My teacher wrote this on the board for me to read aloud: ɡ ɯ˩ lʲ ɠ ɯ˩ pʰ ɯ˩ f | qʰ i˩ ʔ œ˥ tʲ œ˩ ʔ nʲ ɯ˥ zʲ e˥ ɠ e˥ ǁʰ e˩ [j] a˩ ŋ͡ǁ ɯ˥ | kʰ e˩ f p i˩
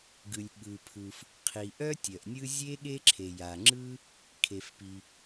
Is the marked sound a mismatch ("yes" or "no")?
no